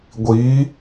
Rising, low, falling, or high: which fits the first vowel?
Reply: rising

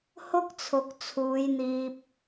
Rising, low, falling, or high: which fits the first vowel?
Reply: high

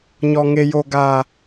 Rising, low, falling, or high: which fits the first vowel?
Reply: high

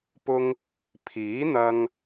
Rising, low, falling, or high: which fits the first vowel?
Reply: high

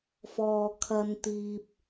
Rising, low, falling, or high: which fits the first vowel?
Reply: low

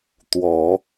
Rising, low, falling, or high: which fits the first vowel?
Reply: low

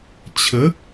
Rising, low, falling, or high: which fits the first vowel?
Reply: rising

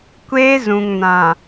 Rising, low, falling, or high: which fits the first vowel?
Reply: high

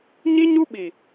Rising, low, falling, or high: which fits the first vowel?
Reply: high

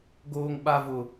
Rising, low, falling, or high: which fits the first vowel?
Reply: high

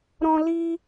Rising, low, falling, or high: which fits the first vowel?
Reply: high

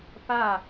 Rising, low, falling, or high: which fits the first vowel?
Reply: falling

